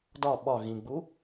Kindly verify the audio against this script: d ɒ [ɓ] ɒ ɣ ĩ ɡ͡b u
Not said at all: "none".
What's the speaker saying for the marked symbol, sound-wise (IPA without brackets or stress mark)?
ɓ